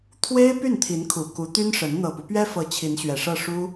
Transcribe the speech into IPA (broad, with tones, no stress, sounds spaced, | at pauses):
t̪ʰ w e˥ ɪ̯ p y˥˩ n t̪ʰ i˧˥ n kʰ u˨˩ k u˧˥ t̪ y˥ n ʂ ə˧˥ n n̪ ɤ˨˩ p u˦ p ɥ ɛ˥ f ɤ˧˥ t͡ɕʰ i˧˥ n ɕ ɥ ɛ˨˩ ʂ ɤ˥˩ ʂ u˥